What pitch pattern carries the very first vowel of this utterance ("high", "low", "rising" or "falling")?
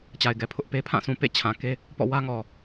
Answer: low